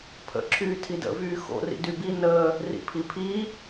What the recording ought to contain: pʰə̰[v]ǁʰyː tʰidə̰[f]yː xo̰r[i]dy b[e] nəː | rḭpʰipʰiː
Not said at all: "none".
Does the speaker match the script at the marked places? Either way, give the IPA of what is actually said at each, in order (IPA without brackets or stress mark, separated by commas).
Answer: none, v, ḭ, i